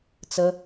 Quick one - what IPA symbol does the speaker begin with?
t͡s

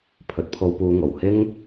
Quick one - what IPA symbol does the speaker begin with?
pʰ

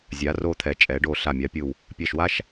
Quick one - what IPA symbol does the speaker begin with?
zʲ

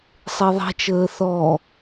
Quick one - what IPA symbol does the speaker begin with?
sˤ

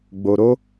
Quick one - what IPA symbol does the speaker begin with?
ɡ͡b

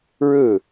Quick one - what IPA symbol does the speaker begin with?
ɻ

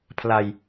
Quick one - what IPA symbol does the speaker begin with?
pʰ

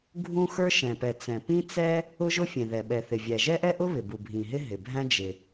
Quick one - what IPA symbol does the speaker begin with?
ɡʱ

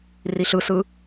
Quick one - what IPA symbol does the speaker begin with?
r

